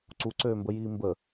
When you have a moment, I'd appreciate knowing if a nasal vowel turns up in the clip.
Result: no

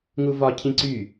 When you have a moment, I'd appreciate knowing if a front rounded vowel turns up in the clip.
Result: yes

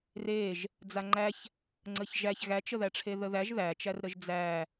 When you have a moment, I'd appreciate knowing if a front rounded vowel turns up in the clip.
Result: no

